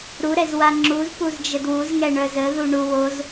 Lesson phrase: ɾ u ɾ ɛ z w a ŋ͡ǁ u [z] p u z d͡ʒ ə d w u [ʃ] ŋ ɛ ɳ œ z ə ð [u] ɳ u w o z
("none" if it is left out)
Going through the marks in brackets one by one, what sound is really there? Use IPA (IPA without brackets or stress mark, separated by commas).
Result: z, z, u